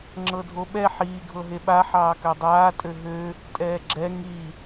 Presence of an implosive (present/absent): present